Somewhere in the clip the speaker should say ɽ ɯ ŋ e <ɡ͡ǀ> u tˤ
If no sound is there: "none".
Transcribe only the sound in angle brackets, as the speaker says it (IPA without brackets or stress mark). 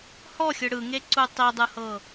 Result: ǀ